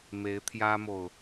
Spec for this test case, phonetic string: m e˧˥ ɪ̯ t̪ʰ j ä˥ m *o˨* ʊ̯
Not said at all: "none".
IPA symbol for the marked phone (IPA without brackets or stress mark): o˨